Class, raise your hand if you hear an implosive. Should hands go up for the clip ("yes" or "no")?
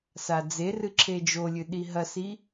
yes